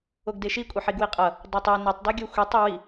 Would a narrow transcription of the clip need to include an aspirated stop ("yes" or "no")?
no